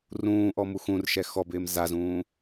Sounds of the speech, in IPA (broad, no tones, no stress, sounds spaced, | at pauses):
r ũː ʔ ɔ m u x ũ r ʃ ɛ x ɔ b ɪː m z a z ũː